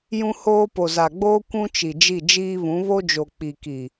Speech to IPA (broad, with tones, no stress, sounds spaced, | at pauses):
j ũ˦ h oː˦ p o˨ z a˨ ɡ͡b oː˦ kʷ ũ˦ t͡ʃ i˨ d͡ʒ i˦˨ d͡ʒ iː˦ β ũ˨˦ β o˦ d͡ʒ o˨ k͡p i˨ k i˨